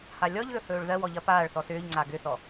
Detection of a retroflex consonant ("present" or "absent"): present